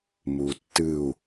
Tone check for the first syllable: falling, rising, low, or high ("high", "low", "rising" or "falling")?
low